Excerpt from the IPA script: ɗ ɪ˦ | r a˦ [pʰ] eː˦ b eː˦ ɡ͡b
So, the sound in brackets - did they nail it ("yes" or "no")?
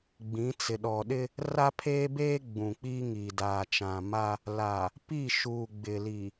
yes